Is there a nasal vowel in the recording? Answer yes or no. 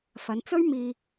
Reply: no